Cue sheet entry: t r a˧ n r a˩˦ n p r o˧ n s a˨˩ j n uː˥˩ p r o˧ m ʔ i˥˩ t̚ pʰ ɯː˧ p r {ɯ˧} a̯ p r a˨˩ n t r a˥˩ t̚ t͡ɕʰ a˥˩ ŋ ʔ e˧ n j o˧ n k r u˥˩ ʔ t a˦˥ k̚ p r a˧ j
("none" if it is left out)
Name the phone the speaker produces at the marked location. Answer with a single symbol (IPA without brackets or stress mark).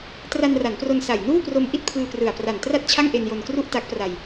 ɯ˨˩